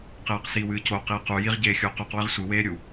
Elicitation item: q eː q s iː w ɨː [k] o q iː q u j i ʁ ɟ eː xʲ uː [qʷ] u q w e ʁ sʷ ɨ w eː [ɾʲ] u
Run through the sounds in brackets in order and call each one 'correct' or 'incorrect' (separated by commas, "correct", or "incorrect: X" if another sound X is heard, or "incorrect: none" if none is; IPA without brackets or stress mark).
incorrect: c, incorrect: q, correct